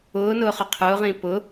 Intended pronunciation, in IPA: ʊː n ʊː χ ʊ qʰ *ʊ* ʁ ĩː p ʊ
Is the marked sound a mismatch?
yes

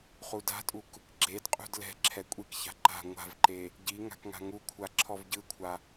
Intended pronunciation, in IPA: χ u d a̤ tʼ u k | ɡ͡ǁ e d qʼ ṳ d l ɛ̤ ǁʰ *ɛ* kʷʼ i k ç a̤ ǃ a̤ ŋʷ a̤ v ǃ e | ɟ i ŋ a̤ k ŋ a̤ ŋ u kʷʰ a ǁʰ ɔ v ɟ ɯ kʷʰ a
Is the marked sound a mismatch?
no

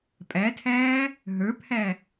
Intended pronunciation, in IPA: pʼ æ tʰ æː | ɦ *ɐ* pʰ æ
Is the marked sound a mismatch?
yes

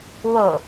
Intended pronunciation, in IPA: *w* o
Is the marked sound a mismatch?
no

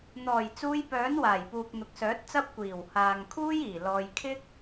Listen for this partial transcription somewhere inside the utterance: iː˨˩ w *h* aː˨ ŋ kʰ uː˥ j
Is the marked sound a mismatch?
no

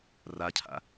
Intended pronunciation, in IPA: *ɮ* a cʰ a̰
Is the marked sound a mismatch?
yes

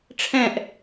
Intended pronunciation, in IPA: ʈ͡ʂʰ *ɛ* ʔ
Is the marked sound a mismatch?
yes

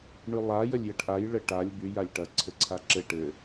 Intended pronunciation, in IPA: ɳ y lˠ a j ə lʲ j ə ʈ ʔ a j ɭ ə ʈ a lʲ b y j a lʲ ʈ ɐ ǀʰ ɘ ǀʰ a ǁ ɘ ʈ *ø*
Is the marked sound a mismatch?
yes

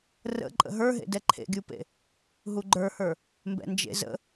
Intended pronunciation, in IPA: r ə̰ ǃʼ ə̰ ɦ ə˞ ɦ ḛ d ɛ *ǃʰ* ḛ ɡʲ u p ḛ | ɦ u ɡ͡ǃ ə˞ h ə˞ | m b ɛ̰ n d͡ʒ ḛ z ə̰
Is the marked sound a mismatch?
no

